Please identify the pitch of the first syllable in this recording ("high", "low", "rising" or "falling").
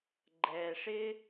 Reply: low